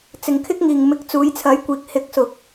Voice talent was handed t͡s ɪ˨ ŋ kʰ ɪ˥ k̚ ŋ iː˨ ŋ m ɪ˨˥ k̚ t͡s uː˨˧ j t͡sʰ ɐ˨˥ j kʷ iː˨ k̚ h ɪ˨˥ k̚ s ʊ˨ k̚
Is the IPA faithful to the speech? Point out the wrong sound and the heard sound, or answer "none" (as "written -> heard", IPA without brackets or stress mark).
none